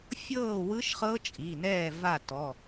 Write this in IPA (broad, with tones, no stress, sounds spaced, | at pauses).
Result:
fʲ ɤː˥˨ w ɯ˦˥ ʃ χ ɤ˦˥ t͡ʃʼ i˩˧˩ n ɛː˥˨ v a˥˨ t ɔ˩˧˩